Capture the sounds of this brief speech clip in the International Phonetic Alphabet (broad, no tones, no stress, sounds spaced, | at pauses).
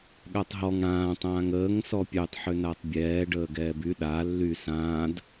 ɠ a tˤ ɦ ɔ ŋ ɽ ãː tˤ ãː ŋ əː ŋ s ɔ pʲ œ tˤ ħ ø n a tˤ bʲ ɛː ɖ əː ɡ ɛː b y ɗ a lː y s ãː d